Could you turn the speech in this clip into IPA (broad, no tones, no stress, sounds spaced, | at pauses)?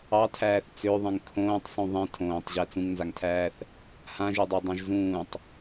ɑ tʰ æː θ t͡s ø ðˤ ẽ ŋ kʰ õː tˤ sˤ ũ ðˤ ẽ tʰ õː tˤ ʑ æ t͡s ũ ŋ n z a ŋ tʰ æː θ | h ã ʒ e dˤ ɑ dˤ ã ʒ z ũː tˤ